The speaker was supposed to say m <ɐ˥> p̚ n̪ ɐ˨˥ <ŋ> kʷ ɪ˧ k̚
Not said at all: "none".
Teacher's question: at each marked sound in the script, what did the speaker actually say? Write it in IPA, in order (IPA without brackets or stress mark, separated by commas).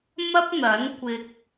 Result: ɐ˥, n